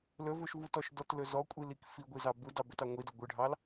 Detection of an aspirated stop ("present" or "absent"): absent